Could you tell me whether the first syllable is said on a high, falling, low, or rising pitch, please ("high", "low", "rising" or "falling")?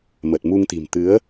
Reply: low